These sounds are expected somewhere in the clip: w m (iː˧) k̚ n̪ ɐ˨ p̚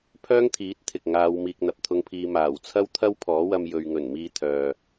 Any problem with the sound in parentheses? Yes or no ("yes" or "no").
no